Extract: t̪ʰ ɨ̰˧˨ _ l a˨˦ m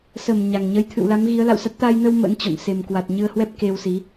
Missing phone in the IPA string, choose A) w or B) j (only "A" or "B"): A